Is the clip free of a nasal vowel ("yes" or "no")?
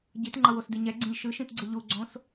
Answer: no